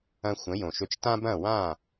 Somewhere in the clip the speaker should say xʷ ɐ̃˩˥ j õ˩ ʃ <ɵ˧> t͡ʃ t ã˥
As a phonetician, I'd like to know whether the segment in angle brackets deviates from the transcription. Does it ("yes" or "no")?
no